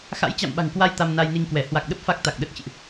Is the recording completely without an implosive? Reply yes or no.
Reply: no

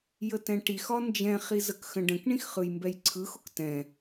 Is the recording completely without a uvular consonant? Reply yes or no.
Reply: no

